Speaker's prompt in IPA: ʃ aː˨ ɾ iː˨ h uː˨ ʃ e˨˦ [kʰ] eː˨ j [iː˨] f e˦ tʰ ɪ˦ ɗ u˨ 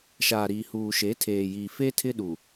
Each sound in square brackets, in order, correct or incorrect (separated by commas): incorrect, incorrect